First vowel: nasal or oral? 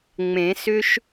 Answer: nasal